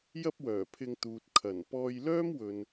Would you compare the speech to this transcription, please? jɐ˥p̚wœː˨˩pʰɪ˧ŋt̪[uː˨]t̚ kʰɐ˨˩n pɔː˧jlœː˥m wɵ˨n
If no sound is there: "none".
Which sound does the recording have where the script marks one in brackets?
uː˨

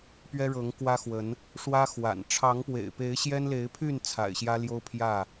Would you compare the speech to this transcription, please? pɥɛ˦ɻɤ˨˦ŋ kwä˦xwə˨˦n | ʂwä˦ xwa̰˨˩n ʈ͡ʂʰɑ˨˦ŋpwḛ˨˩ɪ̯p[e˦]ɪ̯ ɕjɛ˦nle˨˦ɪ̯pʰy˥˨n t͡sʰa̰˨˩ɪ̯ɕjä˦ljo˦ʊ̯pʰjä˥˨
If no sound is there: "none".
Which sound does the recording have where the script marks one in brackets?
e˨˦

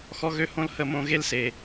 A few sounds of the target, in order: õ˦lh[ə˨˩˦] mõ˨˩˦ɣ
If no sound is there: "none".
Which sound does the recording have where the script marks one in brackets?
ə˨˩˦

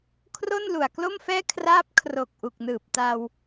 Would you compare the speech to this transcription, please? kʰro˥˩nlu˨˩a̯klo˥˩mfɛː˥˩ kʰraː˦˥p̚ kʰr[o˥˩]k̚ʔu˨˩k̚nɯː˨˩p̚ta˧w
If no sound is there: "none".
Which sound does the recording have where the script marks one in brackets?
o˨˩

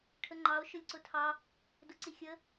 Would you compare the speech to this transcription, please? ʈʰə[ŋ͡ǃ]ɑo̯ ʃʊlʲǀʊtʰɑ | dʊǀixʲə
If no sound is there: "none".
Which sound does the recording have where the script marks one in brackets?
ŋ͡ǃ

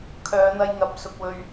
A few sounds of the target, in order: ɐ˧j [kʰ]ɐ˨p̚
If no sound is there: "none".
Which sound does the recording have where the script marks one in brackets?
ŋ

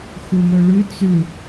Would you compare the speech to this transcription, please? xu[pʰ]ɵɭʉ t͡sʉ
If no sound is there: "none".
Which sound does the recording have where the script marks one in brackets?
m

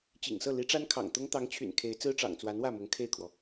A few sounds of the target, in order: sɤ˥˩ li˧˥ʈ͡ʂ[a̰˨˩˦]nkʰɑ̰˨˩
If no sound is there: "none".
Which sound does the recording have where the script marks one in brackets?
a˥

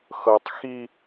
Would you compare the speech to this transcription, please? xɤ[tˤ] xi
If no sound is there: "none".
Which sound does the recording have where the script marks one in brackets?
tˤ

